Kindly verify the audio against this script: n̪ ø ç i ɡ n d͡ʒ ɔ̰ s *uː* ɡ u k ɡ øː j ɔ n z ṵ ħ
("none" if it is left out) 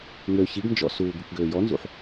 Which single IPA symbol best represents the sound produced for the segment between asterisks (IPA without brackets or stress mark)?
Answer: uː